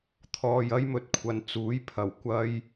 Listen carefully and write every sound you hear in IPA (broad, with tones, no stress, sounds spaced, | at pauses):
t̪ʰ ɔː˨ j ɐ˥ j m ɵ˧ t̚ kʷʰ ɐ˨˧ n t͡s uː˨˥ j pʰ ɐ˨˩ w kʷ ɐ˥ j